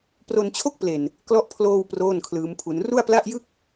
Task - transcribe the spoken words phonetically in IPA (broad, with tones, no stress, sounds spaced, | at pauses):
p r o˧ n t͡ɕʰ o˥˩ k̚ p l e˨˩ n | k l ɔ˦˥ ʔ pʰ l oː˧ w p r oː˥˩ n kʰ l ɯː˦˥ m pʰ u˦˥ n r u˥˩ a̯ p l a˥˩ ʔ j ɯ˥˩ k̚